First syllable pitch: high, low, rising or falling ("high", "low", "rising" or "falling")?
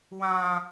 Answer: high